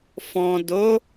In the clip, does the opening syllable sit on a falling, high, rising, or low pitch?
low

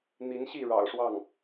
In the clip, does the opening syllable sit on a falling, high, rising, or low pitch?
rising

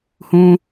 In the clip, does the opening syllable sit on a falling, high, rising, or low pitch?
high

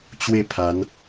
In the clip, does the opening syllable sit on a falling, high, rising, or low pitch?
falling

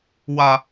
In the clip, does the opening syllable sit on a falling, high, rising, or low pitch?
high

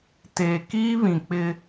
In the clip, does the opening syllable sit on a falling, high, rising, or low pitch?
low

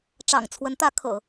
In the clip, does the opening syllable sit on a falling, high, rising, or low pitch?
low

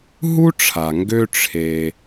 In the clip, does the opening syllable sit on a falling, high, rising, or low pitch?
high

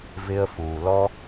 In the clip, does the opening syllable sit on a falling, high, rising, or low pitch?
high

